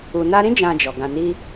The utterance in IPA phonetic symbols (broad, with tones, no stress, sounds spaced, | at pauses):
u˨ n a˧ ɾ ĩ˦ d͡ʒ ã˧ d͡ʒ ɔ˨ ɡ ã˧ n i˦